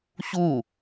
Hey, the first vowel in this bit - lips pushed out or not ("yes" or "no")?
yes